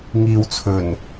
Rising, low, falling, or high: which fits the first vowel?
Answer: low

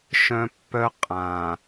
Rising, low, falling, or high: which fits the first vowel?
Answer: high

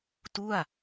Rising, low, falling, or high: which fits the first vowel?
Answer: falling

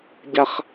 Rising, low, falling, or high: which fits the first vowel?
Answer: high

